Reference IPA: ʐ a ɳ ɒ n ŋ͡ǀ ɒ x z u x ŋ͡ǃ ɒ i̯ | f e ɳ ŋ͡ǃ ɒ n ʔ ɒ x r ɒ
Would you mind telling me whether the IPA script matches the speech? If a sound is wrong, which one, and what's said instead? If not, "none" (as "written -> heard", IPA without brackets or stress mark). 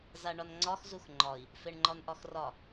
ʐ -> z